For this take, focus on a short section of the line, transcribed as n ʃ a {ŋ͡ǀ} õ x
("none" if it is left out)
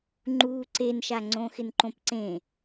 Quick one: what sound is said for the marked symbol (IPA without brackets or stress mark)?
ŋ͡ǀ